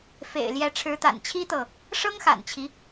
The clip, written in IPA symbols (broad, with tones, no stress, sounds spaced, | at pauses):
f ḛ˨˩ ɪ̯ l j ɛ˧˥ ʈ͡ʂʰ ɻ̩˧˥ t̪ a̰˨˩ n t͡ɕʰ i˥ t̪ ɤ˨ | ʂ ɤ˥ ŋ x a̰˨˩ n t͡ɕʰ i˦